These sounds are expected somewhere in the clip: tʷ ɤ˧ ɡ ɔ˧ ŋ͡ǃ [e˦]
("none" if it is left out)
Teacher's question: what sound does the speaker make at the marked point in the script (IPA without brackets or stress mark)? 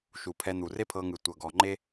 e˦